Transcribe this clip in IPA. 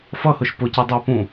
f ʌ h ʊ ʃ p ʊ c ɑ dˤ ɑ p ũ

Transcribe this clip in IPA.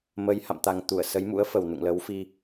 m ə˨˦ j h a̰˧˨ m t̪ a˨˩ ŋ t̪ u˧˩ ə̯ s ə˨˦ j m ṵ˧˥ ə̯ f ə˨˩ w n ṵ˧˨ ŋ l ə˨˦ w f i˧

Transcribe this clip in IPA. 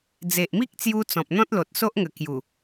d͡z e˨ ʔ m i˦ k̚ t͡s j u˧ t͡s ɔ̃˨ p̚ n̪ ɔ̃˦ t̚ l o˨ t̚ s o˦ ʔ ŋ ə˨˩ k j u˨˩

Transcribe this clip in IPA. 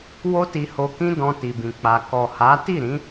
w o˦ t i˧ h o˧ k ĩ˦ d ɔ̃˧ t i˨ b ĩ˨ k͡p a˨ k ɔ˨ h a˨˦ t i˦˨ ɾ ĩ˨˦

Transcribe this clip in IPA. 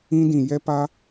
ĩ˦ d ĩ˨ j ɛ˦ p a˦

